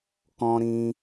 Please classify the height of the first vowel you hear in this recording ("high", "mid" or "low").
mid